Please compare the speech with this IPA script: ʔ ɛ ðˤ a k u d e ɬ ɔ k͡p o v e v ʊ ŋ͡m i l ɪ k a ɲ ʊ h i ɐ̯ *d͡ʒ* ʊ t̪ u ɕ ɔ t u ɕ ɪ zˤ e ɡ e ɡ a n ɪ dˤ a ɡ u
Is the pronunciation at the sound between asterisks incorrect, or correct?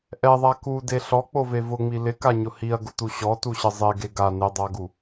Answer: incorrect